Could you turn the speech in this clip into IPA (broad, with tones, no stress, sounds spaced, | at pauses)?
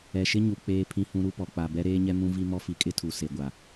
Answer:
ɛ˨ ʃ ɪ˦ ɲ u˨ k͡p eː˦ pʰ ĩ˦ h ũ˦ ɾ u˦ p ɔ˨ k͡p a˨ b ɛ˦ ɾ eː˦ ɲ ɛ˦ m ũ˦ v i˦ m ɔ˦ f i˨ kʼ ɪ˦ tʰ u˨ s e˨ ɡʷ a˨